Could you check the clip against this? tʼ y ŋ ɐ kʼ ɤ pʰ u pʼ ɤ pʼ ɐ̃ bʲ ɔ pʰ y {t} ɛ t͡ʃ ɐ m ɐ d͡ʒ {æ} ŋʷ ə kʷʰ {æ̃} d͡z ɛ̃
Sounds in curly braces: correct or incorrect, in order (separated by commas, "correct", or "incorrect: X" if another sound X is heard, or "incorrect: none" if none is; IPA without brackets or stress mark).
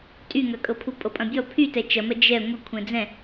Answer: correct, incorrect: ɛ, incorrect: ɛ̃